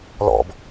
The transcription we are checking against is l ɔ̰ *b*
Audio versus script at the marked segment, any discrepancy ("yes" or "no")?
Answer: no